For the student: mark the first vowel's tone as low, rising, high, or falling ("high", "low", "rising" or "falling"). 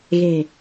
low